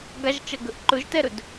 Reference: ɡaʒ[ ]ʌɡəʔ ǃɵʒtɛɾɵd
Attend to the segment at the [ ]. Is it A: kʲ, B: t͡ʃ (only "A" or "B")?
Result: B